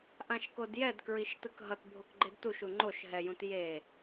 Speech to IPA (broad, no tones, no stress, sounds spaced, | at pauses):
ʔ ã ʃ k o d j ɛ d k ɹ i ʃ t ɯ k ɦ ʌ t bʱ o k ɡ͡ǃ e d t u ʃ u ŋ͡ǃ o ʃ ɦ ɛ j ũ t j e